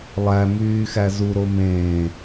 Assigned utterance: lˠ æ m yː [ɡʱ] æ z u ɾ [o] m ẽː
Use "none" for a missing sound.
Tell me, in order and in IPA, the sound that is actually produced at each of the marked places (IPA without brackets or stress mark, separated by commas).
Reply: x, o